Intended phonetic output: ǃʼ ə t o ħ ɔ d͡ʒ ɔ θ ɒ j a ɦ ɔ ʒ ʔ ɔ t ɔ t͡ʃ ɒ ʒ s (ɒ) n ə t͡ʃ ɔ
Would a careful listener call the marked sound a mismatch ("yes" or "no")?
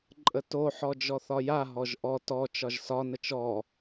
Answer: no